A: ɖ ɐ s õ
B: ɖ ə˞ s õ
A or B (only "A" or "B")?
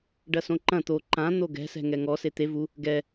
A